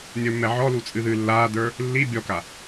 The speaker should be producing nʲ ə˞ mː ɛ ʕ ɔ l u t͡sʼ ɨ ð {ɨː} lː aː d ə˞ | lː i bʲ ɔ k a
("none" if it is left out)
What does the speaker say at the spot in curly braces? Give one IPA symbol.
ɨː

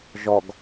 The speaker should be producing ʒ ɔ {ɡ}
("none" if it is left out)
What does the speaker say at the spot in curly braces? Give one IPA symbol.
ɡ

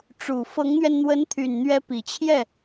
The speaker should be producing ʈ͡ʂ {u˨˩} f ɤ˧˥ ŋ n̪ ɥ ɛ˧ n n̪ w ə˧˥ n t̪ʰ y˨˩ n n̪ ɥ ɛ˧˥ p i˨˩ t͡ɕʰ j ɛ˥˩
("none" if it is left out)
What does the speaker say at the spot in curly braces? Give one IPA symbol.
u˨˩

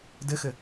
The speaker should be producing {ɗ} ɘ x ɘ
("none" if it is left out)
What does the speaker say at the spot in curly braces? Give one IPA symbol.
d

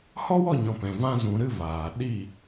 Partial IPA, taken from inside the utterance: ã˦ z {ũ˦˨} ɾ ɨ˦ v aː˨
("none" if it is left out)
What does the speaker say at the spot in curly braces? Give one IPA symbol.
ũ˧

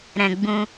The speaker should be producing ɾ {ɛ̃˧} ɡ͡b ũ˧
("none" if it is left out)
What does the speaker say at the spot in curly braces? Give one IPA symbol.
ɛ̃˧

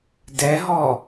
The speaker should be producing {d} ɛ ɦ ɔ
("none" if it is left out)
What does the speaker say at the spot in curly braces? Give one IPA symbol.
d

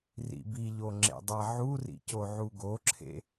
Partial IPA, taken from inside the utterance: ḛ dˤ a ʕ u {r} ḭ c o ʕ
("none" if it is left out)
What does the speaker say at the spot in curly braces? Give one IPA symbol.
r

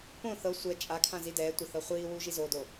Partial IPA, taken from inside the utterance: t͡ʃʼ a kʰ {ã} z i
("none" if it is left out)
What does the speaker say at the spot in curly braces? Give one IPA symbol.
ã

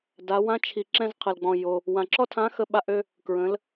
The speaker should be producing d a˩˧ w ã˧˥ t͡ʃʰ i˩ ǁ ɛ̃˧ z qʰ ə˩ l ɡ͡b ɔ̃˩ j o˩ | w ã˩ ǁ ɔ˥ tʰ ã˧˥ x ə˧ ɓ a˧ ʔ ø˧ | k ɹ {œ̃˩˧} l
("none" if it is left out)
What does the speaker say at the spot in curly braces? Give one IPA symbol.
ə̃˩˧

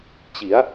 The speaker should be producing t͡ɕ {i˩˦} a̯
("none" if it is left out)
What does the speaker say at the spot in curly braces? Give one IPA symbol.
i˩˦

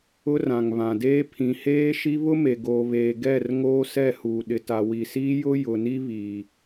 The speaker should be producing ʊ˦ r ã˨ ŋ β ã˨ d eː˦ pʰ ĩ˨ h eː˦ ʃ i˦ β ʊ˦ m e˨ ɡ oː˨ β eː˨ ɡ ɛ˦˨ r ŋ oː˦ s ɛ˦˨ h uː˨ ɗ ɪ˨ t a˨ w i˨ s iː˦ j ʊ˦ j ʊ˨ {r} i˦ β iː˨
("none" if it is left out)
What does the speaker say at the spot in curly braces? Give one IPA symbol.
n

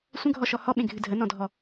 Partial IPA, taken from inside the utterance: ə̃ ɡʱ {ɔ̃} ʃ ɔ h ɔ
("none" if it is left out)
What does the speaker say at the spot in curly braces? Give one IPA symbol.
ɔ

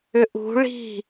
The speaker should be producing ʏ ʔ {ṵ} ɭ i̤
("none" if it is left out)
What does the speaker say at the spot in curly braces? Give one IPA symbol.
ṳ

